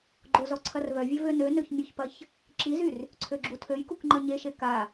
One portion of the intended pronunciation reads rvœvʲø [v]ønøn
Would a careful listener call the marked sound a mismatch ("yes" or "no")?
no